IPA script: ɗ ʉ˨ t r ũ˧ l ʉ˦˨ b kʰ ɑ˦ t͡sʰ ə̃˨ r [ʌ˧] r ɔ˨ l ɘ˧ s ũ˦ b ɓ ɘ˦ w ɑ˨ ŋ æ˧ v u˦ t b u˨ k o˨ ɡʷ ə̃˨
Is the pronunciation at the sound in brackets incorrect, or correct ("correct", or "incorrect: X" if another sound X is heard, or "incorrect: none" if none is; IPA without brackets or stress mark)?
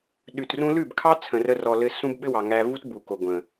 incorrect: ə˧